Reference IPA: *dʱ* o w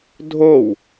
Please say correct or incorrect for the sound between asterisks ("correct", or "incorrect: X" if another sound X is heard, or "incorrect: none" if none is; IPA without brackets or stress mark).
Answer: correct